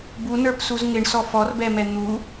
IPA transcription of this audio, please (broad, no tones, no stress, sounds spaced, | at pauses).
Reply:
b u n ə˞ p s u z ŋ ɪ ɳ s ɔ f ɔ r b ɛ m ɛ n̪ u